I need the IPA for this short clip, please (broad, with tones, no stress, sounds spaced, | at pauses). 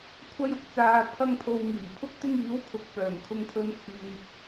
kʷʰ ɐ˥ j ʊ˥ k̚ t͡s aː˧ pʰ ɐ˥ ŋ pʰ o˧ w ŋ iː˨˩ pʰ ʊ˥ k̚ t̪ ɪ˥ ŋ iː˨˥ w kʰ ʊ˨ k̚ p œː˨˩ ŋ kʰ ʊ˧ ŋ pʰ ɵ˧ n t͡sʰ yː˨ p̚